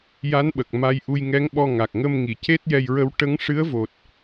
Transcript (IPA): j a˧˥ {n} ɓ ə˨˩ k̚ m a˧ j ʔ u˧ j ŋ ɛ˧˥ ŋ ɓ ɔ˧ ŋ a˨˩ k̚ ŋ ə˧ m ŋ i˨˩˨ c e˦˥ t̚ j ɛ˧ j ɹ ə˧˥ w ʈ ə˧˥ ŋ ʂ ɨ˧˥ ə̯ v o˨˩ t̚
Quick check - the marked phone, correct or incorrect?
correct